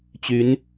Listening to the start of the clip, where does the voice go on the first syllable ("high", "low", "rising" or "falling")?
rising